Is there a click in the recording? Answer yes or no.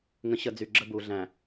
yes